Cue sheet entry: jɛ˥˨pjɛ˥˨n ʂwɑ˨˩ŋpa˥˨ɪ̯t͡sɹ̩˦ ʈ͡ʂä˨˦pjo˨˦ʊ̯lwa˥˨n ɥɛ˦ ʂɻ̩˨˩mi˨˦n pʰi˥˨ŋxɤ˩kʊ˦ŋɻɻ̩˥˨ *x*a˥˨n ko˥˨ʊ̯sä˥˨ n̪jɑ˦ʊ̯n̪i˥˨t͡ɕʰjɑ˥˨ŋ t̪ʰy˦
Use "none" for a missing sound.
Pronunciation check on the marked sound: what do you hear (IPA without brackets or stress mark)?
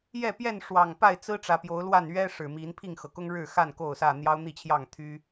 x